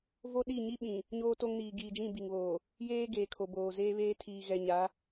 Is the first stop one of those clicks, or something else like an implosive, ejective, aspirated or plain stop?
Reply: implosive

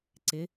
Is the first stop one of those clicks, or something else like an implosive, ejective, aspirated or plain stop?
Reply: click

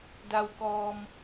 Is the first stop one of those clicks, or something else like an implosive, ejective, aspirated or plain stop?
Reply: plain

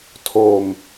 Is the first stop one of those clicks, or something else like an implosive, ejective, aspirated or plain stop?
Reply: aspirated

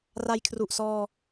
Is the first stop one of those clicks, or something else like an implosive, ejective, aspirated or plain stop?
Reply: aspirated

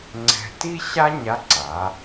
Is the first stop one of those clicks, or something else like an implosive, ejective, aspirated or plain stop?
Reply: click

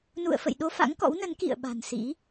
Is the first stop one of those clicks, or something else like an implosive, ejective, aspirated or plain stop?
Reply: implosive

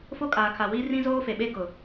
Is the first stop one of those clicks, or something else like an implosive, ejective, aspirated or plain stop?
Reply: ejective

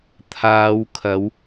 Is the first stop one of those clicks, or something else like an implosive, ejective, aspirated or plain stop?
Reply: aspirated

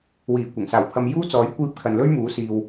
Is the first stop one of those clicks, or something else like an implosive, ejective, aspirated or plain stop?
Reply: plain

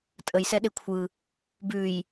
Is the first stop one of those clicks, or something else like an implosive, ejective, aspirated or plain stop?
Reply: ejective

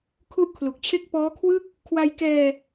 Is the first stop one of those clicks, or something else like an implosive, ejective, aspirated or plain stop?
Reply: aspirated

